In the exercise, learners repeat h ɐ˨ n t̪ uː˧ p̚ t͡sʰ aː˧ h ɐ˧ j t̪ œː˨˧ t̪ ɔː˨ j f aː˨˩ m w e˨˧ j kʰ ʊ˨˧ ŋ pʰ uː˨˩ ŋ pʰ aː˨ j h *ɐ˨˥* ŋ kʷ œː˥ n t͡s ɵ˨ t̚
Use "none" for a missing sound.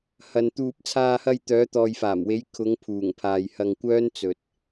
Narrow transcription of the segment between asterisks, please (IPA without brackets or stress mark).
ɐ˧